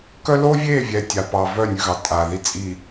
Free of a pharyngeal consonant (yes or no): yes